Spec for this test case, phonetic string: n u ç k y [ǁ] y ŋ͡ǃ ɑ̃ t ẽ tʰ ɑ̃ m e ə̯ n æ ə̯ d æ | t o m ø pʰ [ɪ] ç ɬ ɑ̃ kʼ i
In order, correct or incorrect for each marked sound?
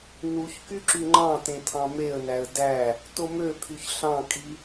correct, incorrect

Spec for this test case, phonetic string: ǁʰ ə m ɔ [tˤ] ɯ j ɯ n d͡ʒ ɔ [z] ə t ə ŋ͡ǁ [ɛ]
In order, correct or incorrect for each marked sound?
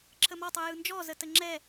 correct, correct, correct

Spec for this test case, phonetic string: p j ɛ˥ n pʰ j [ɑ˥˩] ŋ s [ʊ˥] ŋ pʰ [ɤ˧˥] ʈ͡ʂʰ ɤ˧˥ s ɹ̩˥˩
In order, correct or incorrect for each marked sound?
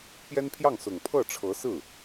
correct, incorrect, incorrect

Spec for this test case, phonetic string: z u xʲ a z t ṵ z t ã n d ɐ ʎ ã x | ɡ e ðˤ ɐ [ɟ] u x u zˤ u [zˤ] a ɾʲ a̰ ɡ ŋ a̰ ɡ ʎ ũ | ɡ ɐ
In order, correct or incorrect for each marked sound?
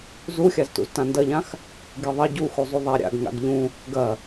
correct, incorrect

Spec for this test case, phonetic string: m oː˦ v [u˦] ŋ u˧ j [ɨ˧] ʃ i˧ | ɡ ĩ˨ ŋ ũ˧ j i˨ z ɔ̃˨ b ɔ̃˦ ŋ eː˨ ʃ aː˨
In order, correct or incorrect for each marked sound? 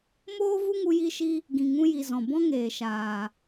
correct, incorrect

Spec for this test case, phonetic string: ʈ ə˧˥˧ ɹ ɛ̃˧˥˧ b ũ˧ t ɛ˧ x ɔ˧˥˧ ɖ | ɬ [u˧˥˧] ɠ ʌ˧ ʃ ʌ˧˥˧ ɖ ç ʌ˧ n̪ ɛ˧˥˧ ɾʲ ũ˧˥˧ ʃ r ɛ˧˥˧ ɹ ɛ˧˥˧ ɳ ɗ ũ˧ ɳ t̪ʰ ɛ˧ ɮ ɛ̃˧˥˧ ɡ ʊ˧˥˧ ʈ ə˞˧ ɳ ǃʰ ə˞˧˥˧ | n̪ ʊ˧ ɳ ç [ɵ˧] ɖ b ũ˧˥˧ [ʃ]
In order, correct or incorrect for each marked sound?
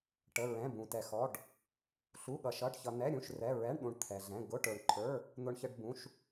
correct, incorrect, correct

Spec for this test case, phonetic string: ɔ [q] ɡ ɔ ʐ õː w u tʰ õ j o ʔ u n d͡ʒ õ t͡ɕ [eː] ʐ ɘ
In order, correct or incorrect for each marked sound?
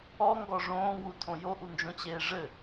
incorrect, correct

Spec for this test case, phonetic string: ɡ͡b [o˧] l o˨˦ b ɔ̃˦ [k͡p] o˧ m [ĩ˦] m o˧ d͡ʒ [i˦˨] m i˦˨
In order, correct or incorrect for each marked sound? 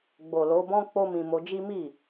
incorrect, correct, incorrect, incorrect

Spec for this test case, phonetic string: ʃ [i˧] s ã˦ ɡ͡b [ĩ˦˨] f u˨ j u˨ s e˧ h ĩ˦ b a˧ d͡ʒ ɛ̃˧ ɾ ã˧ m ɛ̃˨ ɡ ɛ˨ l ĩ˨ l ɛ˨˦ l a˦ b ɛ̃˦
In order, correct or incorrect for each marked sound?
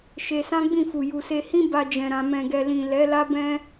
incorrect, correct

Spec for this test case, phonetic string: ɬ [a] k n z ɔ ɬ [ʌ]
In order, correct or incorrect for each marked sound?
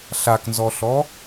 correct, incorrect

